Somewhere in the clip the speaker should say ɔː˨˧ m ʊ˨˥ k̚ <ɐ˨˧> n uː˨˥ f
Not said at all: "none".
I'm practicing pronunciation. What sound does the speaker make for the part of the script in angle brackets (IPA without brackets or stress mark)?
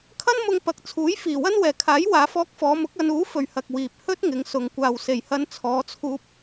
ɐ˨˧